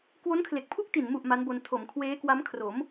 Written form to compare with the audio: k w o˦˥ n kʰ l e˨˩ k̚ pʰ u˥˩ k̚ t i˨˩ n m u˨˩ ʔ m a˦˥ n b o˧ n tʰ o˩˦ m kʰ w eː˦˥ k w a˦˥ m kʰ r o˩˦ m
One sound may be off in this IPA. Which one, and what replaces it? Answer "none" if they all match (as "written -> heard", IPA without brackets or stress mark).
none